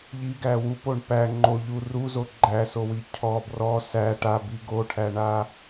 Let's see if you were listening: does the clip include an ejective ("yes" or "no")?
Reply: no